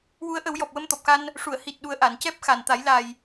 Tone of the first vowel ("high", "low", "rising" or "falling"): rising